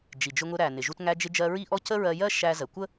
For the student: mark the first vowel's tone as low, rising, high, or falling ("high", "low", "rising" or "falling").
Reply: low